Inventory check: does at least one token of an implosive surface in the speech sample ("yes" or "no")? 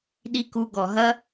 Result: yes